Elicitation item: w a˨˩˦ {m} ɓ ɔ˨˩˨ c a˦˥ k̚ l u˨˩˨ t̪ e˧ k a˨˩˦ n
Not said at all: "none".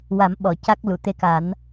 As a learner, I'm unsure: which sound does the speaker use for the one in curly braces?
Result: m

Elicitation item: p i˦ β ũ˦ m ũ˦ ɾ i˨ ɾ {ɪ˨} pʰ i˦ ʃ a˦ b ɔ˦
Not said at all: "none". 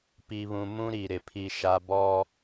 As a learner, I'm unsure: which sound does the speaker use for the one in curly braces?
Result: ɪ˨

